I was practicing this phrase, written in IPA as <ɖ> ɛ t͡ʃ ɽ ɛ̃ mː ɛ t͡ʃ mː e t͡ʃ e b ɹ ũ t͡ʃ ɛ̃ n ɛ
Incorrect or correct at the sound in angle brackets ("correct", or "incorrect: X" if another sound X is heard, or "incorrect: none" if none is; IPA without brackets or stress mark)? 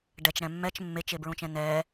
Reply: correct